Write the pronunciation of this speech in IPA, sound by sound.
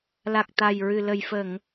l a˨˩ k̚ t̪ a˨˩ j ɹ ɨ˨˩ l ə˨˩ j f ə˨˩˨ ŋ

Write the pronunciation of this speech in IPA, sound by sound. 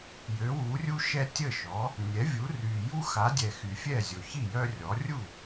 j ø˩˥ w u˩˥ rʲ u˦ ʃ ɛ˦ tʲ ə˥˩ ʃ ɔ˩˥ | nʲ ɛ˩˥ vʲ u˩˥ r y˨˩ j u˦ x a˩˥ dʲ ɛ˨˩ x y˨˩ fʲ ɛ˥˩ zʲ o˨˩ ç i˥˩ j œ˦ rʲ ɔ˩˥ rʲ u˥˩

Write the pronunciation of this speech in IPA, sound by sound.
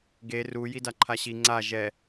ɡ e r u j i d a ǃʰ a ɕ i ŋ͡ǀ a ʒ ɛ

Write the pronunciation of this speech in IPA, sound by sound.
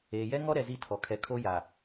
eː˨ j ɛ˦ ŋ ɔ˦ ɾ ɛ˨ z i˦ tʰ ɔ˨ kʰ ɛ˨ kʰ o˦ j a˨

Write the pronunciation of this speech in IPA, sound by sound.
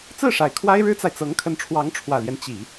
t͡s ɹ̩˥˩ ʂ a˨˩ ɪ̯ kʰ w a˥ ɪ̯ ɻ ɻ̩˥ t͡s a˨ ɪ̯ t͡s ɤ˧˥ ŋ kʰ ə˧˥ n ʈ͡ʂʰ w ɑ˧˥ ŋ ʈ͡ʂʰ w ä˨˩ l j ɛ˦ n t͡ɕ i˨˩˦

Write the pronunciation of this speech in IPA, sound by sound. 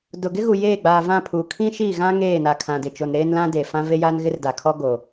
d ʊ˨ ɡ ɪ˦ ɣ u˨ j eː˦˨ ɡ͡b aː˨ v ã˦˨ pʰ uː˨ kʰ ĩ˦ ʃ iː˦˨ ɣ ã˦ ŋ eː˦˨ n a˨ kʰ ã˨ d ɪ˨ t͡ʃ o˨ n ɾ eː˦ n l ã˦ d eː˨ f ã˦ v e˦ j aː˦ n ɣ ɪ˦ r d a˨ kʰ ɔ˦ ɡ o˨

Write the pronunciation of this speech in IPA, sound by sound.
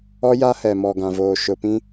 ɔ˦ j a˦ h ɛ˨ m ɔ˨ ɡ ã˨ v oː˨ ʃ ʊ˨ p ĩ˦

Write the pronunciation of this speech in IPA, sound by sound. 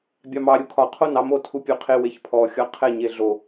bʲ ɑ m ɑ ɾʲ u kʰ ɒ qʰ o n ɑ m o tʰ u pʲ o qʰ e w e ç pʰ ɔ xʲ ɒ qʰ ɛ ɲ e ɮ o

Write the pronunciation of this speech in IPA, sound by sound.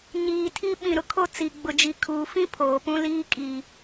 ɲ iː˨ tʰ i˦ ɓ ĩ˨ ɾ ʊ˨ kʰ o˦˨ t͡s i˨ ɡ͡b ʊ˨ d͡ʒ i˨ kʰ uː˨ f ĩ˦ pʰ oː˨ p ũ˦ l iː˦ kʼ i˨

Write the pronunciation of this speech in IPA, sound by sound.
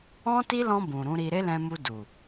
ɔ̃˦ t i˦ l ɔ̃˧ b ũ˨ ɾ ũ˨˦ ɾ i˧ ɾ e˦ l ɛ̃˧ m u˧ d u˨

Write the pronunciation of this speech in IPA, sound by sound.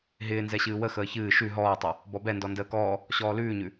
ɦ ɪː n z ɛ ɕ ɨː w ə x əː ç ɨː ʃ ʉ ɦ ɔː tˤ ɨ | b ɔ b ɛ n d ɔ n d əː k ɔː | ɕ ɔː l ʉː ɲ ʉ

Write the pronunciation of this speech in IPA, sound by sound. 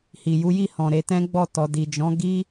h i˨ j u˨˦ j i˦˨ h ɔ̃˨ ɾ e˧ t ɛ̃˦ ɡ͡b ɔ˦˨ t ɔ˨ d i˨ d͡ʒ ɔ̃˨˦ ɡ i˦

